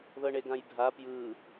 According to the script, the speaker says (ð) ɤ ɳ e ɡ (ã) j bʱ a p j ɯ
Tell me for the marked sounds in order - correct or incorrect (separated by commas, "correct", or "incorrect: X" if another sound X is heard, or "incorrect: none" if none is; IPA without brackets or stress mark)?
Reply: correct, correct